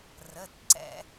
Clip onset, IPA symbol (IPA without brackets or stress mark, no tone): r